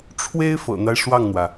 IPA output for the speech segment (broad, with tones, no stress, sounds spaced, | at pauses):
ʈ͡ʂʰ w e˥ ɪ̯ f ɤ̰˨˩ n̪ a˦ ɪ̯ ʂ w ɑ˥˩ ŋ n̪ w ä˩